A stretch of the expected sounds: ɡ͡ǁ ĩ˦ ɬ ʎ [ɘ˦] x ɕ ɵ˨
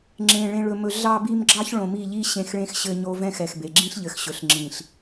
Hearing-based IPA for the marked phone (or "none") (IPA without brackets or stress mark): ɘ˨